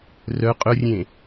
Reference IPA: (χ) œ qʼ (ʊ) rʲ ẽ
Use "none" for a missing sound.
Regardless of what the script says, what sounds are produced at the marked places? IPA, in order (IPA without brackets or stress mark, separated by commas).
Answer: r, ʊ